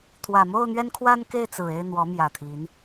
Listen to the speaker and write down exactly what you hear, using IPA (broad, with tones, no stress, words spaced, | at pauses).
t̪ʰwä˨˩mo˥˨ʊ̯n̪ɥɛ˦nkʰwa˦n ke˥˨ɪ̯t͡sɹ̩˨˩e˥˨ɪ̯ n̪wɔ˨˦mjä˨˩t̪ʰi˨˦n